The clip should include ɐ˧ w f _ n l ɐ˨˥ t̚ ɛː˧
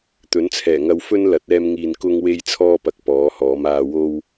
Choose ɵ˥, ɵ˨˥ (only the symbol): ɵ˥